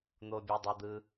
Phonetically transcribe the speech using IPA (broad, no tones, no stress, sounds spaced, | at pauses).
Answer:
n̪ o bʲ u dˤ ɯ d̪ ɯ